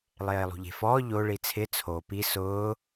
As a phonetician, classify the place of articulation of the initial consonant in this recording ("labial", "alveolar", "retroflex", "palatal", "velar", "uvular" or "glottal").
alveolar